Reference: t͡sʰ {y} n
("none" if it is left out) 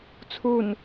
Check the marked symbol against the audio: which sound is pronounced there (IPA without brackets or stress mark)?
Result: u